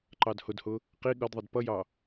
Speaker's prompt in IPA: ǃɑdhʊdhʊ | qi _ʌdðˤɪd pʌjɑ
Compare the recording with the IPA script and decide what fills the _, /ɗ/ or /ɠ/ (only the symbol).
ɠ